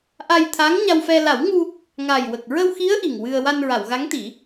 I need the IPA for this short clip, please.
ʔ a˧ j t̪ʰ a˧˥ ŋ ɲ a˧ w f ɛ˧ l a˨˩˦ w ŋ u˧ | ŋ a˨˩ j w ə˨˩ k̚ ɹ ə˧ w x i˧˥ ə̯ ʔ i˨˩ ŋ w ɨ˧ ə̯ w a˧ n ɹ a˨˩˨ w ɣ a˧˥ ŋ t̪ i˨˩˦

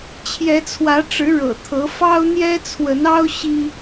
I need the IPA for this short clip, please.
t͡ɕʰ j ɛ˨˦ t͡sʰ w ä˨˦ ʈ͡ʂ ɻ̩˨˦ ɻ ɤ̰˨˩ t̪ʰ ɤ˨˦ f ɑ˦ ʊ̯ n̪ j ɛ˦ t͡sʰ w ə˨˦ n ɑ˦ ʊ̯ ɕ i˦

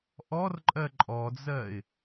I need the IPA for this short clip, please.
ʔ ɔ r ǃʼ ɜ ǃʼ ɔ d͡z ɜ ɪ̯

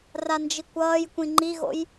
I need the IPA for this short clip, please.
r a n d͡ʒ i kʷ ʌː j kʷ ĩ ŋ͡ǃ i ɣ o̰ j

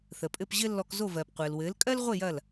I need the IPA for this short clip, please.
θ ə˩ pʼ ɘ˥˩ p ʑ ɘ˥ lː ɔ˧ k z o˥˩ v ɜː˩ p qʷ ɘː˩ l w ɘː˩˥ l kʼ ɜ˥ l ʁʷ e˥˩ j ɐ˥˩ l

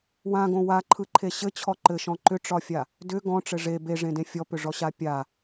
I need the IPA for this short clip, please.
w ã ɡ õ w a ǃʰ ɯ ǃʰ e ɕ ɘ t͡ɕʰ ɔ ǃ ɘ ʃ ɔ̃ ǃ ʏ ʈ͡ʂ ɒ fʲ a | d ʏ ɡ ɔ̃ ʈ͡ʂ ɘ ʐ e b e ʐ ẽ d ẽ fʲ ɔ p ʏ ʐ ɔ ɕ a pʲ a

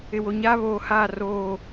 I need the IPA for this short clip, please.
ɪ˨ w o˨ ɲ aː˦ β oː˨ h aː˦˨ r oː˦˨

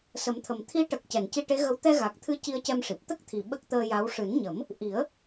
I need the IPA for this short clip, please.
s ə˨˩˦ m t̪ʰ ə˨˩ m t̪ʰ i˧˥ ʈ ə˨˩ k̚ c ɛ˨˩˨ n c i˧ ʈ e˧˥ ɣ ə˧˥ w t̪ ɛ˧ ɣ a˨˩ k̚ t̪ʰ ɨ˧ c i˧ ə̯ c ɛ˧ m ʂ i˨˩ p̚ t̪ ə˦˥ k̚ t̪ʰ i˨˩ ɓ ə˦˥ k̚ t̪ əː˧ j a˧˥ w ʂ ɨ˨˩˦ n ɲ ə˨˩˦ m | ʔ i˨˩˦ ə̯

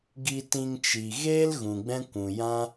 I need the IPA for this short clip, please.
ɡ i˧ t ĩ˧ ŋ t͡ʃ i˨ ɣ eː˦ l ɣ ũ˨ ɡ͡b ɛ̃˦ kʷ ũ˨ j ã˦

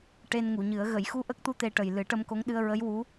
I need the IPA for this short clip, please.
ʈ e˧ n ŋ u˨˩˨ ɲ ɨ˨˩˦ ə̯ ɣ ə˨˩˨ j x u˧ ʔ ə˦˥ k̚ t̪ u˧ t̪ e˧ ʈ ə˨˩ j l ɨ˨˩˦ ʈ ə˧ m k o˧˥ ŋ ɗ ɨ˧ ə̯ ɹ ə˧˥ j w u˧˥

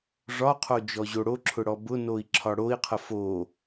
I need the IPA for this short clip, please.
ʐ ɒ qʰ o d͡ʒ ɔ ʑ o ɽ o ǁʰ ʊ ɽ ɔ b ʊ n o i̯ ǁʰ ɒ ɽ o i̯ qʰ ə f o

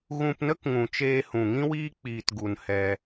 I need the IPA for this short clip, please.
ɣ ũ˧ p n ə˦ k ŋ ũ˨ t͡ʃ eː˧ h ũ˨ ŋ ĩ˦ w iː˦ k͡p iː˨ t ɡ u˨ n h ɛ˧

